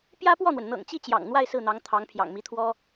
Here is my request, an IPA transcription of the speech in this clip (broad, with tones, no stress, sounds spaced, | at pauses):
p j ä˥ p w ɔ˥˩ n̪ w ə˩ n n̪ ɤ̰˨˩ ŋ t͡ɕ i˥˩ t͡ɕ j ɑ̰˨˩ ŋ n̪ w a˥˧ ɪ̯ s ɹ̩˥˩ n̪ ɑ˧˥ ŋ t̪ʰ ɑ˧˥ ŋ pʰ j ɑ̰˨˩ ŋ m i˧˥ t̪ʰ w ɔ˥